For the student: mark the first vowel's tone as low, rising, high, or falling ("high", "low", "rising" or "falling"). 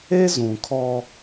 high